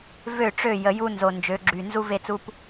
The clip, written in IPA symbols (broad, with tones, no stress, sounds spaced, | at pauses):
v ø˦˨ ʈ͡ʂ ø˦˨ j ə˨ j u˦ n z o˨ n d͡ʒ ø˨˦ ɡ͡ǁ y˨ n z u˦ v e˦ t͡s u˦ p